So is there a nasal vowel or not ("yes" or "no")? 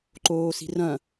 yes